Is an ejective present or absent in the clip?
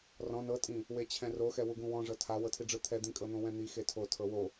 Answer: present